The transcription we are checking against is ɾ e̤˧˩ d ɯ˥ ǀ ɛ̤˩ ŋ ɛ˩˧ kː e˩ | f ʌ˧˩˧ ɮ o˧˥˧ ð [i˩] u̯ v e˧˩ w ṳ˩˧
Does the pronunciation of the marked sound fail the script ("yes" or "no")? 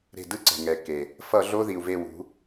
no